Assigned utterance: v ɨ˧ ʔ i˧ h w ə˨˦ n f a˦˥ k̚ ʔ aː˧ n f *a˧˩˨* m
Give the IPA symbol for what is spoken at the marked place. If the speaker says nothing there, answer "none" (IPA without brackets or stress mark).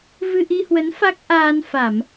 a˧˩˨